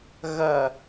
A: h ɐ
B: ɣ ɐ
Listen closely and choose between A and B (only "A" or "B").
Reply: B